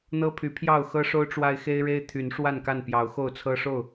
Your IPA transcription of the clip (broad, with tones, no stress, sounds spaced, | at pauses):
n̪ ɤ˦ pʰ y˨˦ pʰ j ɑ˥˨ ʊ̯ x ɤ˦ ʂ o˦ ʊ̯ ʈ͡ʂ w a˦ ɪ̯ x e˦ ɪ̯ ɻ e˦ ɪ̯ t̪ʰ y˨˦ n ʂ w a˥˨ n k a˥˨ n p j ɑ˨˦ ʊ̯ x o˥˨ ʊ̯ t͡sʰ ɤ˦ ʂ o˥˨ ʊ̯